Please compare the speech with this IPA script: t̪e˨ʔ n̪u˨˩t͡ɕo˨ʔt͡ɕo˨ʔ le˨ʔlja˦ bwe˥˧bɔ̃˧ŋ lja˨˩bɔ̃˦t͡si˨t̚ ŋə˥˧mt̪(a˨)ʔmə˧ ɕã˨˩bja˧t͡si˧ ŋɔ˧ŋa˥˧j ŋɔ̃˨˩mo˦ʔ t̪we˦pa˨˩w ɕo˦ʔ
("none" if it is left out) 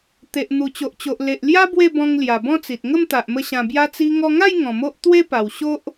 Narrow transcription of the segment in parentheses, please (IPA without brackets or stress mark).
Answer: a˨